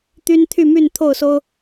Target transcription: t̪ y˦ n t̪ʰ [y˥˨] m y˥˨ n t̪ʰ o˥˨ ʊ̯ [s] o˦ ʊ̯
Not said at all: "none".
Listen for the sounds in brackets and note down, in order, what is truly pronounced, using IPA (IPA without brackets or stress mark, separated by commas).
y˥˨, s